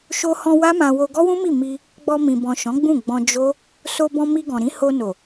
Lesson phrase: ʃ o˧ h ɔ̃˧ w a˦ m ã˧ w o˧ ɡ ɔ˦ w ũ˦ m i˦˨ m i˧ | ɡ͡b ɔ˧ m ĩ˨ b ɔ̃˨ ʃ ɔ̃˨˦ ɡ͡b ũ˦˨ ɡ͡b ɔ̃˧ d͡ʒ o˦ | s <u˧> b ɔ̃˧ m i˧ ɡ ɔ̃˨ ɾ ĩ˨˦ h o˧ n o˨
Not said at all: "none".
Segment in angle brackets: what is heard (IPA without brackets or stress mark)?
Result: o˧